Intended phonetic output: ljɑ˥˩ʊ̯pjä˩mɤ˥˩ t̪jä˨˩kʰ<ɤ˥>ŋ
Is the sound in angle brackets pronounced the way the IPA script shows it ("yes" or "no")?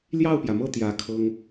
yes